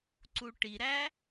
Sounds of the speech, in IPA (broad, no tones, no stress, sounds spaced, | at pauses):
ǀ u ʈ i ɾ æ